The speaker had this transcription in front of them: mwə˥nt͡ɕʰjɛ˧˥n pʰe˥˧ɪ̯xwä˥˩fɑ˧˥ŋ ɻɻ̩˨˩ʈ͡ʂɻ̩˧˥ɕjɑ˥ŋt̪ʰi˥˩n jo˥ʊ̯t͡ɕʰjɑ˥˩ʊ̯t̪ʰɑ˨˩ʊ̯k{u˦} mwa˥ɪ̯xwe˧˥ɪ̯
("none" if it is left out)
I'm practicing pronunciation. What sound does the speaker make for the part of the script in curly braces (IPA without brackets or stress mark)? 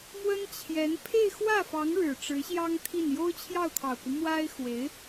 u˦